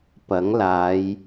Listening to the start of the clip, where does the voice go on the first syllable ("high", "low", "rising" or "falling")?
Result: rising